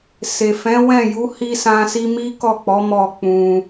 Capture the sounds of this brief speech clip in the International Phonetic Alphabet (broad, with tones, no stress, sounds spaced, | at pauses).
s e˨ f ɛ̃˨˦ w ɛ̃˦˨ j u˨˦ h i˦ s ã˦ s i˦ m i˦ k ɔ˦˨ k͡p ɔ˨˦ m ɔ˦˨ k͡p ũ˧